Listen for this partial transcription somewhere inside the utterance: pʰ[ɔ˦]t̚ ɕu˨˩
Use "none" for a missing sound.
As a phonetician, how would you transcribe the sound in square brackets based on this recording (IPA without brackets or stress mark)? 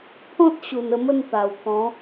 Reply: ɔ̃˦